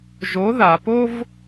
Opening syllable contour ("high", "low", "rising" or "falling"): rising